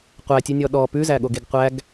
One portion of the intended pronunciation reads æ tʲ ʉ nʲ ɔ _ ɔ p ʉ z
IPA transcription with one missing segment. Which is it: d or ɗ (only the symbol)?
ɗ